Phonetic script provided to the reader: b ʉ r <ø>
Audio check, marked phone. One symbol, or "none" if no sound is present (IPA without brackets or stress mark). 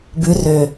ø